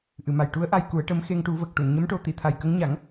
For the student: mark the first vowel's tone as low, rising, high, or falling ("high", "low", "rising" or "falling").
low